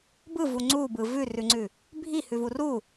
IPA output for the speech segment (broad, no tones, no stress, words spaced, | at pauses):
bɯvu ŋ͡ǀubɯ vʉrʉŋ͡ǀʉ | bʱihʉvu ru